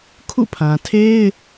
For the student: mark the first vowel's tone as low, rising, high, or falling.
falling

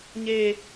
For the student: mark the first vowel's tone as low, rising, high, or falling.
high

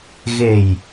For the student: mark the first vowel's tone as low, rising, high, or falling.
low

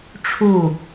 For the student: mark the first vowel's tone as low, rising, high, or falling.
falling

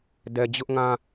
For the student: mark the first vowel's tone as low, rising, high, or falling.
low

